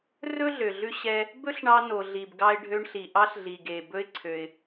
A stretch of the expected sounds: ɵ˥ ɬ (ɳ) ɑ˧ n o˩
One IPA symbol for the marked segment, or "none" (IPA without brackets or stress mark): ɳ